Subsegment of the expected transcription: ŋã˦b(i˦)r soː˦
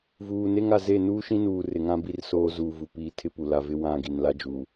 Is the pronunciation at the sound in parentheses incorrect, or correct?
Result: correct